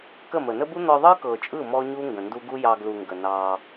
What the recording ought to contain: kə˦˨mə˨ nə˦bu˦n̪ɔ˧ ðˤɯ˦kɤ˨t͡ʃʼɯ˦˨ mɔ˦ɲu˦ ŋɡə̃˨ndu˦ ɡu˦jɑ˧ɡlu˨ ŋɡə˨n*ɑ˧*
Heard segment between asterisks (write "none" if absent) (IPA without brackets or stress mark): ɑ˧